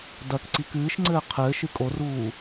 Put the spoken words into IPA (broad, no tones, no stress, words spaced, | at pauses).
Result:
dɐk ǀikɨːʃŋ͡ǀɘː qʰɘː ʃɨkʼoruː